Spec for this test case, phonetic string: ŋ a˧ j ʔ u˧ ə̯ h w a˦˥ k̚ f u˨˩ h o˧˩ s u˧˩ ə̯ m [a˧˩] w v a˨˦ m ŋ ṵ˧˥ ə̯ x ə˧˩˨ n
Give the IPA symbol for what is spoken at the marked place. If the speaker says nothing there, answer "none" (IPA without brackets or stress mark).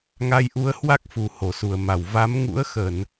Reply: a˧˩